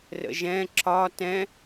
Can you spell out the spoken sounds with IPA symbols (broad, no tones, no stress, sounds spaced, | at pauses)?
r ə̰ ʒ ɛ̃ ǁ ɒ t ɛ̃